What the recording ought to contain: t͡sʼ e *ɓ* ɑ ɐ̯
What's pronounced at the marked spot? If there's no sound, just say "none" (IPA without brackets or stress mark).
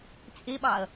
ɓ